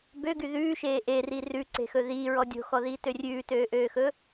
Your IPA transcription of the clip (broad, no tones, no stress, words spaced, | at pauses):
bøɡy ðʉːʃeː ʔeri rʉǀe̤xɵ ðiːɹɔ dʲo̤xɔðiːtø rʲʉːtøːʔøːxɵ